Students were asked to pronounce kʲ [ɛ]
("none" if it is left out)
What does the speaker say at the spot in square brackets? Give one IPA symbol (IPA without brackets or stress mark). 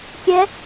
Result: ɛ